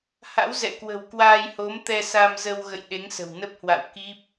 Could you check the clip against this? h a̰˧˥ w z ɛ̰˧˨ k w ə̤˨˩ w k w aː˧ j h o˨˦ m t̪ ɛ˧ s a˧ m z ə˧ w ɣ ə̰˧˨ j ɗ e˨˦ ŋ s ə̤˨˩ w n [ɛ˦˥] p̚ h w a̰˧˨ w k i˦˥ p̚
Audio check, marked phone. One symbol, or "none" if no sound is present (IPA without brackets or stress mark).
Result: ə˦˥